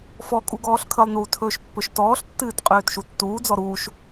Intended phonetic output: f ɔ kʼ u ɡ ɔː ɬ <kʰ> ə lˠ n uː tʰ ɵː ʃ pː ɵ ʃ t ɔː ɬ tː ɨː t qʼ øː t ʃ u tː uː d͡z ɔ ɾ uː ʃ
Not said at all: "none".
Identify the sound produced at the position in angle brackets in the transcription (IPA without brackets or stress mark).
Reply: kʰ